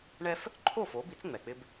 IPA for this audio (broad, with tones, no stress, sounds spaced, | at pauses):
ɳ ɛ˥ f | ǃʰ o˥˩ f o˩˥ b i˩˥ t͡s ŋ͡m ɛ˩ k͡p ɪ˧ b